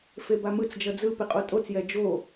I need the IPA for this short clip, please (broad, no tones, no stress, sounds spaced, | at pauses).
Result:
f e b a m ɯ t͡s d͡ʒ ʌ d͡z ɯ p e qʼ o tʼ o t͡s j ɛ d͡ʒ o